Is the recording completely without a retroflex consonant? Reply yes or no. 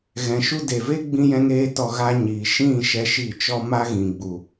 yes